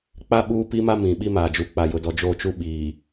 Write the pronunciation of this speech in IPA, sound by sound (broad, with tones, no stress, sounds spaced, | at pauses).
k͡p a˦ ɓ uː˦ p i˦ m a˦ m ĩ˨ ɓ i˦ m aː˨ d͡ʒ u˨ k͡p a˨ j ʊ˨ d ɔ˨ d͡ʒ o˦˨ t͡ʃ u˦ ɓ iː˨